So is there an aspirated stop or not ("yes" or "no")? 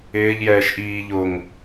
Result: no